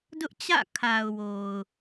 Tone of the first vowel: high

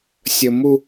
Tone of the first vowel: high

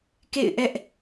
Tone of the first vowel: falling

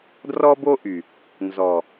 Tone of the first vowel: high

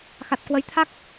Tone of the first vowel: low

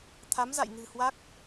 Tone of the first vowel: rising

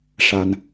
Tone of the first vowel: low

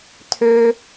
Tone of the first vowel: high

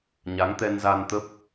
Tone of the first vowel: rising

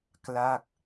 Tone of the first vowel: falling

